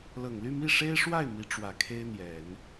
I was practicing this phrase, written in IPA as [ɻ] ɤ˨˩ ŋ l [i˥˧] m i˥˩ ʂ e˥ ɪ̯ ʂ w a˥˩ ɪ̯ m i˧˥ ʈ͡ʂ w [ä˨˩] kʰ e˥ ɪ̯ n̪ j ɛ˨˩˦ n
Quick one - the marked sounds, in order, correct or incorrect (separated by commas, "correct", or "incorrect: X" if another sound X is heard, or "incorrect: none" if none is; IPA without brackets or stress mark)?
incorrect: l, incorrect: y˥˧, correct